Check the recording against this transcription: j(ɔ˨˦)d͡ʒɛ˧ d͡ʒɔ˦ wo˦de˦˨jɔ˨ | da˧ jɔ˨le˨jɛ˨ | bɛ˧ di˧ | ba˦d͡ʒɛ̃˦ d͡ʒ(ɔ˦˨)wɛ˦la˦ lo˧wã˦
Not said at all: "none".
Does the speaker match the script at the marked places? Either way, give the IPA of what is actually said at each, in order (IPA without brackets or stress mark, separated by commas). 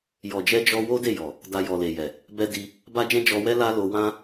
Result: ɔ˨, ɔ˧